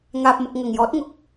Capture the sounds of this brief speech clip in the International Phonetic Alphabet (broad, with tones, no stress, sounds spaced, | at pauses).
ŋ aː˨ p̚ m ʊ˨ k̚ ŋ ɐ˨˩ ŋ j ɔː˨˥ t̚ ŋ ʊ˨ k̚